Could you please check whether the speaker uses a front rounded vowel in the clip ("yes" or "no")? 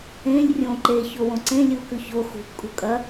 no